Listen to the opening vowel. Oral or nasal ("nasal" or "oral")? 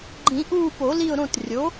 nasal